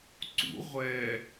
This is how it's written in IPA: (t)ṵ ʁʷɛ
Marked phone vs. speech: incorrect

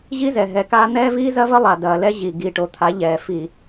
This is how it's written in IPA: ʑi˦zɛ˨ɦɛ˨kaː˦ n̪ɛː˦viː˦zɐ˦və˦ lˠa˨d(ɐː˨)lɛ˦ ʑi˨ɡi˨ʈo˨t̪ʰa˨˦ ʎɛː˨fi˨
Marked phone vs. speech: correct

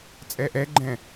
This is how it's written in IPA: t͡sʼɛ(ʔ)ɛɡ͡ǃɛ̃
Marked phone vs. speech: correct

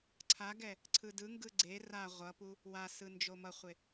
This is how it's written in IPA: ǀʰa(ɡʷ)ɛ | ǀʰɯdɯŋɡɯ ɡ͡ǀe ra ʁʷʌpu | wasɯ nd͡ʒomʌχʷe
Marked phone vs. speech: incorrect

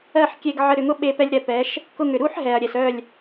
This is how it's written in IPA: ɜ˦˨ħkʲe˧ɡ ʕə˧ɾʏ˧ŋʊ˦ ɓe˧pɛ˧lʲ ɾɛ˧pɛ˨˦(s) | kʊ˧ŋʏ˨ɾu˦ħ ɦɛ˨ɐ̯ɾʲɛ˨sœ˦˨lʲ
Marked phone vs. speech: incorrect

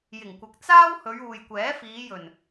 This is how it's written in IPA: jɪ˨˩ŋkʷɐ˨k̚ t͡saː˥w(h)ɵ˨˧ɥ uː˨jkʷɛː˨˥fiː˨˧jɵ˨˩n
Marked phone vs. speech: correct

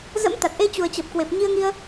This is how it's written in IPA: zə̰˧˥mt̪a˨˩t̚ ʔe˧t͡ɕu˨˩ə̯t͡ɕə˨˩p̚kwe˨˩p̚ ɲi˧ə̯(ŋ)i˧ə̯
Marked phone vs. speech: correct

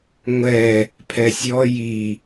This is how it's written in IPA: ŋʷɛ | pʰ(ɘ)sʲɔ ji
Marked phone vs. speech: incorrect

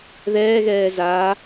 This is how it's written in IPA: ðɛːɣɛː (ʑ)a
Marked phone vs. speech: incorrect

